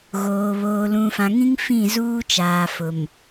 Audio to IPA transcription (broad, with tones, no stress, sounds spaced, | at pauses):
ɣ oː˨ β oː˨ l ũ˨ f ã˨ ŋ ĩ˦ ŋ f ĩ˦˨ z uː˦ t͡ʃ aː˨ f ʊ˨ m